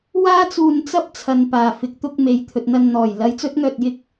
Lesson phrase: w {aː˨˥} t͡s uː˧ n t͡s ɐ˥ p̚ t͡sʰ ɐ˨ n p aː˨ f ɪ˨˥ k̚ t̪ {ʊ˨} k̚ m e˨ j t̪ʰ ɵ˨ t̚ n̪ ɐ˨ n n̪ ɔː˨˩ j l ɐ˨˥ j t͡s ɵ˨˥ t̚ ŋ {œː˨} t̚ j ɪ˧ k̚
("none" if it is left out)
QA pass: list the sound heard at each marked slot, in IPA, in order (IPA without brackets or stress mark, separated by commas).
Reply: aː˥, ʊ˧, œː˨